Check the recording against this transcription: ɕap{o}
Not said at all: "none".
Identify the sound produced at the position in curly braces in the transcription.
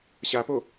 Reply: o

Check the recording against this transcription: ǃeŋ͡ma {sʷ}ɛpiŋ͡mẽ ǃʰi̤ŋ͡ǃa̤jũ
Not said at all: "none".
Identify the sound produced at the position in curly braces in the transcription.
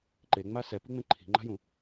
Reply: s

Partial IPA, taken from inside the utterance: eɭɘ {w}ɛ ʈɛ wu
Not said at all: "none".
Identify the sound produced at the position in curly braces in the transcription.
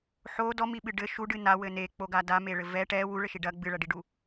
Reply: v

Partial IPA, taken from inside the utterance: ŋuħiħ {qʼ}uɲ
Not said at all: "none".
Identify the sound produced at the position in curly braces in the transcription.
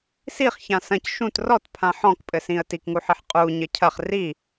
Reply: qʼ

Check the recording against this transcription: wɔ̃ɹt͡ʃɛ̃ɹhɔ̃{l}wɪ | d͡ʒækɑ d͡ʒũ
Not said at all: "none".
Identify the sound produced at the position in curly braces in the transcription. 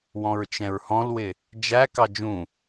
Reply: l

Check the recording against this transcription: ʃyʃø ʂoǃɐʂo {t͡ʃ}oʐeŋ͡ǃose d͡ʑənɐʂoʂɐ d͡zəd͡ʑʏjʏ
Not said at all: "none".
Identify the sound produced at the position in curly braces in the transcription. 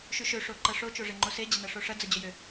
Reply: t͡ʃ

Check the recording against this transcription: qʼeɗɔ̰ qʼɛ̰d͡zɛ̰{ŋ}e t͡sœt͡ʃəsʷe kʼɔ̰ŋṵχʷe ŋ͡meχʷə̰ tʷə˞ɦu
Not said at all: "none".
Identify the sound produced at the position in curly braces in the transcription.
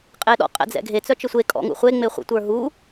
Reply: ɡʱ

